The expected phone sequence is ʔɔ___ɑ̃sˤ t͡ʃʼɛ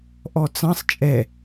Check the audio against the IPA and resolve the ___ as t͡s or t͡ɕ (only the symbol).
t͡s